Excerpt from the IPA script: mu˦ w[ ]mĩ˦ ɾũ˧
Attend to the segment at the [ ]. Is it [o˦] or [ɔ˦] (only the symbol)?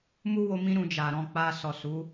o˦